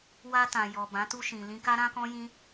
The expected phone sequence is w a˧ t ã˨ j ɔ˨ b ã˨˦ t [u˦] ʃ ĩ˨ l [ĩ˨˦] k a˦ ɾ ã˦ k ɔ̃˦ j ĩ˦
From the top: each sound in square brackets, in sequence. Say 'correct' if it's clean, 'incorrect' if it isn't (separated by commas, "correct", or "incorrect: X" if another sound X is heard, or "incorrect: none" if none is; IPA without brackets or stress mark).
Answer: incorrect: u˧, incorrect: ĩ˧